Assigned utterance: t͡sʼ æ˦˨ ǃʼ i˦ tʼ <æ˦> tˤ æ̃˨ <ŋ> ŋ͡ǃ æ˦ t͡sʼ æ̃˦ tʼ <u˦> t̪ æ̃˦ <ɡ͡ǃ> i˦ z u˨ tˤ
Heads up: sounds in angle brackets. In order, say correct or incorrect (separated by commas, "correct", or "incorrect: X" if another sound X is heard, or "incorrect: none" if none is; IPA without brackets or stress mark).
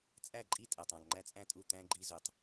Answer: incorrect: æ˨, correct, incorrect: u˦˨, correct